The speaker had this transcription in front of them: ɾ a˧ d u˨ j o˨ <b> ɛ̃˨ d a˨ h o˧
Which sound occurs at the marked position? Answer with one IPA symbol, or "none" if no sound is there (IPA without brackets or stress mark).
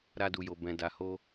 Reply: b